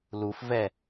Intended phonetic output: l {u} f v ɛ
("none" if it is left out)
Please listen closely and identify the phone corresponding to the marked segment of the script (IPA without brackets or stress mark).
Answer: u